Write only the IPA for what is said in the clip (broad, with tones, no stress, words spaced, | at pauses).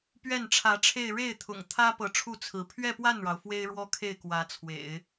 pɥɛ˥˩nʈ͡ʂʰä˧˥ʈ͡ʂʰe˥˧ɪ̯ ɻe˥˩ɪ̯t̪ʰʊ̰˨˩ŋ t̪ʰä˥ pɤ˧˥ʈ͡ʂʰu˥˩ t͡sʰɹ̩˧˥ pʰɥɛ˥˧pwa˥˩nɻɑ˩ʊ̯ fwe˥ɪ̯ɻwɔ˥kʰe˥˩ɪ̯ kwä˧˥t͡sʰwḛ˨˩˦ɪ̯